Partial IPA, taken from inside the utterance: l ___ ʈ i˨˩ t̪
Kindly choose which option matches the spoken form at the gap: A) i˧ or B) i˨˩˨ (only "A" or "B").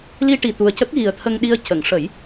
A